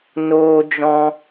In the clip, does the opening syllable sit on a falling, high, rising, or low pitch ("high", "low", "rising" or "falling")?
high